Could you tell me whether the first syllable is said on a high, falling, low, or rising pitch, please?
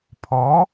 rising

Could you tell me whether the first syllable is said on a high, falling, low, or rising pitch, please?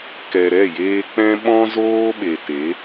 low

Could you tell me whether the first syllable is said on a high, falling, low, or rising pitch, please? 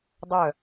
falling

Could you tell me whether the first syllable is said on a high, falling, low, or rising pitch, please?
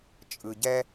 low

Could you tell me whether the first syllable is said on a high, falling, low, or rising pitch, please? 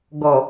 low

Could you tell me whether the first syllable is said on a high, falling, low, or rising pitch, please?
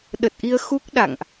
low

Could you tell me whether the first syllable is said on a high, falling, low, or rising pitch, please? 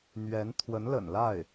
rising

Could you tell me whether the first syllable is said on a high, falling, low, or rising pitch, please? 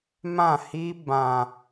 falling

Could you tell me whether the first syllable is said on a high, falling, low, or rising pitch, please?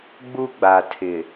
high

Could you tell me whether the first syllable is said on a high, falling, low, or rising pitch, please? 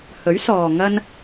rising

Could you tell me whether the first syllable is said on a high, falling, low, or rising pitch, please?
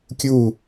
falling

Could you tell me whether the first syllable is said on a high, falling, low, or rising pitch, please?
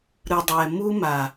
low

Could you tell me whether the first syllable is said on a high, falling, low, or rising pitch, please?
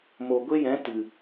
low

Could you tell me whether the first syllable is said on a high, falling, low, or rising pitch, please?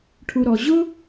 low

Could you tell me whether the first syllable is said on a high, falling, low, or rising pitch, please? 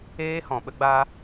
high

